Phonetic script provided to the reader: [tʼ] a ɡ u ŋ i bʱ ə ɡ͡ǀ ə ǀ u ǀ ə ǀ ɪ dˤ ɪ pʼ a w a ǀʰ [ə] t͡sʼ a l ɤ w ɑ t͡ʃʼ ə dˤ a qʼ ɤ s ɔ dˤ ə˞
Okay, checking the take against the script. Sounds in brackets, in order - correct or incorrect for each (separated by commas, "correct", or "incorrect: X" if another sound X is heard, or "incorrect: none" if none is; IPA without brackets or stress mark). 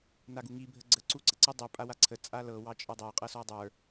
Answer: incorrect: n, correct